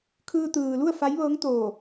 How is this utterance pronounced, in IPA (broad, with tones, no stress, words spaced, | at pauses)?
kʰɯː˧t̪ɯː˩lu˥˨ə̯ fa˧˥jʋɤː˧˥ŋt̪oː˧˩